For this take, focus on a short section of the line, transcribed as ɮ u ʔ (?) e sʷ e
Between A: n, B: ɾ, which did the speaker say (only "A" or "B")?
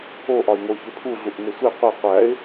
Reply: A